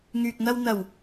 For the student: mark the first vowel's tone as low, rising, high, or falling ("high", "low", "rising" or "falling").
low